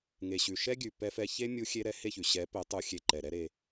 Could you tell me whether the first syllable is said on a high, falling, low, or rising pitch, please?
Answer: low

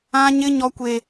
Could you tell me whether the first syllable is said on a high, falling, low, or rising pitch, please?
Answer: high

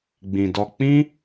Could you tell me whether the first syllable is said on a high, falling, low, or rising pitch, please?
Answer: low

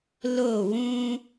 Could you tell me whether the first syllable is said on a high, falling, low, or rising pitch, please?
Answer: falling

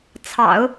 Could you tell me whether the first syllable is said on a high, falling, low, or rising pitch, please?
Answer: low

